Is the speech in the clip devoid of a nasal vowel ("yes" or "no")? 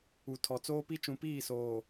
no